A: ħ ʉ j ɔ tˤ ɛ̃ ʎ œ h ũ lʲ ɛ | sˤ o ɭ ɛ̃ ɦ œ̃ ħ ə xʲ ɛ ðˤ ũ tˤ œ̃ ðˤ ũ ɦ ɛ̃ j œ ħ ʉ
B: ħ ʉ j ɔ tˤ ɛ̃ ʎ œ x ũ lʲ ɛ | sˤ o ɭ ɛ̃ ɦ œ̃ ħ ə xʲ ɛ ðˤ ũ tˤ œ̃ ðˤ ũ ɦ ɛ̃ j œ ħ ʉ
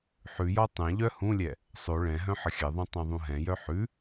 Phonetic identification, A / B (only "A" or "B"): A